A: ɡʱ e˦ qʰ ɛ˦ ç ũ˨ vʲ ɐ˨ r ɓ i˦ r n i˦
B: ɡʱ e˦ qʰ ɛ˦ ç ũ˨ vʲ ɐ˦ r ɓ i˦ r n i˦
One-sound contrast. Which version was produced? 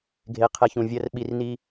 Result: B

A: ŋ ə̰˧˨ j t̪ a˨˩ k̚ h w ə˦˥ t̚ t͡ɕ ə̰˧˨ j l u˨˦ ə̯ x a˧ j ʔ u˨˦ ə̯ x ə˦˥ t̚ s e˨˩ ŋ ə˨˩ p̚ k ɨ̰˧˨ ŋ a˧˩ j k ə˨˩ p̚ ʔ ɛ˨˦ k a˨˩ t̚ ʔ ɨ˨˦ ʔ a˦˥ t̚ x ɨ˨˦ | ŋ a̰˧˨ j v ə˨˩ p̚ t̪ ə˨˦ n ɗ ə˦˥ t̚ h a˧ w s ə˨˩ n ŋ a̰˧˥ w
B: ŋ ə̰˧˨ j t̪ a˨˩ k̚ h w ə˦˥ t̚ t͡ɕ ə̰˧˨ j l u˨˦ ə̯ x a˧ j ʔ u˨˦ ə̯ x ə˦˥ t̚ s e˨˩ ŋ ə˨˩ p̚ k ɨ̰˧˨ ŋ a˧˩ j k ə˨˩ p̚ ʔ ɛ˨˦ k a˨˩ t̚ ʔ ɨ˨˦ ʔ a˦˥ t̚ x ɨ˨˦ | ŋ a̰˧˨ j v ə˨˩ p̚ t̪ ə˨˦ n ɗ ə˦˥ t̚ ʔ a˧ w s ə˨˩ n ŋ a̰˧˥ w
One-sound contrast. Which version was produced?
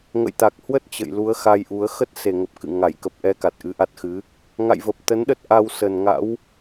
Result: B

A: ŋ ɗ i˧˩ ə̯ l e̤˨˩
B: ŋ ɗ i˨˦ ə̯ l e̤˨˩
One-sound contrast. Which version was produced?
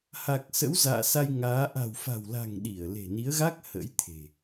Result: A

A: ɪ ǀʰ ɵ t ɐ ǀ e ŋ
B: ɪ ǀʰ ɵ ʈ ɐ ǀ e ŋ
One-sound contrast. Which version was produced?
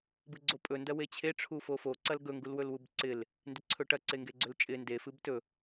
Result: B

